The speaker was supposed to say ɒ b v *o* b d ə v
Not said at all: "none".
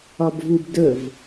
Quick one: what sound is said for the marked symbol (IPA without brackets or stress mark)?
u